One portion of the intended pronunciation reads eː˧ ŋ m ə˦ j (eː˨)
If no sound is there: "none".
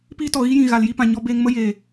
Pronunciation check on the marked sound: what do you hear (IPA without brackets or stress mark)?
eː˨